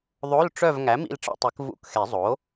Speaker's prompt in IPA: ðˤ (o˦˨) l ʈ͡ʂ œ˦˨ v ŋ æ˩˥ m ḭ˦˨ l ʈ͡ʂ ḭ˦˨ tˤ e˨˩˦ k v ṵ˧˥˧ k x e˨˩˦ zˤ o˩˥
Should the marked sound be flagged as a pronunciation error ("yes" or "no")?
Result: yes